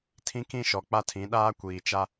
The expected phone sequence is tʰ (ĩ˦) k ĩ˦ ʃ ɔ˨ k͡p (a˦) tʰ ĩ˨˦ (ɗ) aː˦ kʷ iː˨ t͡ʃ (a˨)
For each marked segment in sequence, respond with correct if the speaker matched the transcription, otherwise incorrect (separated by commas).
correct, correct, correct, incorrect